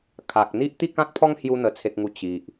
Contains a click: no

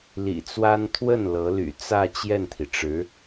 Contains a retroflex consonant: yes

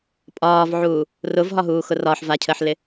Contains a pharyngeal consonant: yes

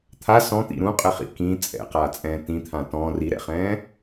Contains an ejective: yes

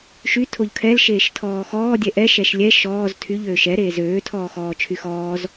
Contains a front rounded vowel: yes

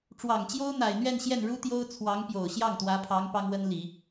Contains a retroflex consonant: yes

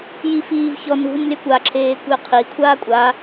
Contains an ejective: yes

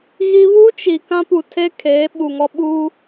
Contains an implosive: yes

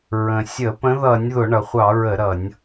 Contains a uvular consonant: yes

